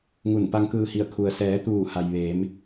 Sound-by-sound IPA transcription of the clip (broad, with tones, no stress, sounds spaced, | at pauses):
ŋ u˧˩ n p a˧ ŋ k ɯː˧ h i˧˩ ə̯ kʰ u˩ ə̯ s ɛː˩˧ t̪ uː˧˩ h a˩ j ʋ e˩˧ m